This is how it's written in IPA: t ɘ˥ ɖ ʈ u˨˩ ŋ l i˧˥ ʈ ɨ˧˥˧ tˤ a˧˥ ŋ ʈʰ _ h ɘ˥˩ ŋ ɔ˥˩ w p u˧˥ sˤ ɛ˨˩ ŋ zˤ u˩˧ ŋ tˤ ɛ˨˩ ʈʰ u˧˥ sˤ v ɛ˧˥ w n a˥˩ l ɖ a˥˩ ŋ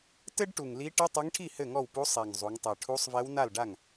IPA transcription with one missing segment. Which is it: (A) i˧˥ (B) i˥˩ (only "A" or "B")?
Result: B